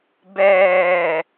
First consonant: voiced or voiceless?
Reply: voiced